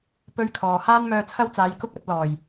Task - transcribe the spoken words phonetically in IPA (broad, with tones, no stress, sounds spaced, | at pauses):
p ɵ˥ ɥ kʰ ɔː˨ h aː˥ n m œː˧ t͡sʰ ɐ˥ w t͡s aː˨˧ j k ʊ˥ k̚ ɐ˨˥ t̚ l ɔː˨˩ j